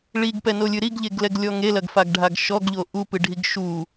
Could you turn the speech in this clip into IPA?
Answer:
ɭ i ɡ p ɛ n o lʲ ɨ ɾ i ɡ ʎ e ɡ l ɛ ɡ lʲ ɔ ŋ e l ɐ ɡ f a ɡ ɖʱ a ɡ ʃ ɔ ɡ ʎ o ʔ u p ɨ ɖʱ i ɡ ʃ u

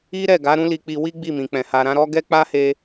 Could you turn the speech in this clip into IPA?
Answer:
i˦ ɾ ɛ˦˨ ɡ a˨˦ ɾ ũ˦ l i˧ k͡p i˧ w i˦ ɡ͡b i˦˨ m ĩ˨ k͡p ɛ̃˨ h a˨ ɾ ã˨˦ ɾ ɔ˦ ɡ ɛ˦ k͡p a˦ h e˧

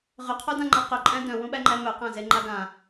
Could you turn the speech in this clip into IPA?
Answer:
ʁ ʏ qʰ o d ã ŋ͡ǃ a q ʏ ǃʼ æ̃ d œ̃ w ũ ɓ æ ŋ͡ǃ æ m œ q æ̃ z e ŋ͡ǃ a ɡ ã

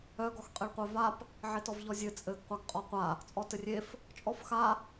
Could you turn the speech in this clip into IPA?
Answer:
œ ɡ ɔ x qʼ e ɭ qʷ œ v a p | ʕ e t ɔ v ʎ ɔ zʲ ɘ t͡sʼ ɘ ɡ qʷ a ɡ qʼ ɔ qʷ a | t͡sʼ ɔ t ɘ rʲ e f | t͡ʃʼ ɔ f x a

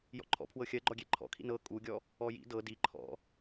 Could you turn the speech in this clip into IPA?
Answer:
j ɔ̰ ǃʰ ɔ̰ pʰ w ɤ xʲ ɜ ɡ͡ǃ ɔ ɡʲ e ǃʰ ɔ̰ kʰ ḭ n ɤ kʼ u ɡʲ ɔ | ɔ j ḭ d ɤ d i ǃʰ ɔ̰

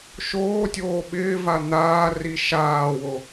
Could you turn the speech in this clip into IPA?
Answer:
ʃ oː tʲ oː ɓ ɪː v a n̪ aː r i ʃ aː w o

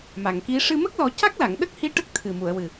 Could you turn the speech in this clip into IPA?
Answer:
m a˨˩˨ ŋ k i˧˥ ʂ ɨ˧ m ə˦˥ k̚ l ɔ˨˩˦ c a˦˥ k̚ l a˨˩˨ ŋ ɗ ə˦˥ k̚ h i˧˥ ʈ ə˦˥ k̚ t̪ʰ ɨ˨˩ m u˨˩˨ ə̯ w ɨ˨˩

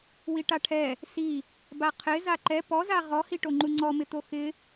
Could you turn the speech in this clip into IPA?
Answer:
w i ʈ a ʈʰ ɛ | s i | b a qʰ ɪ z a ǃ ɛ p ɔ z a ʁ ɔ h i ʈ o ŋ͡ǃ u ŋ͡ǀ ɔ m ɪ t̪ o x ɪ

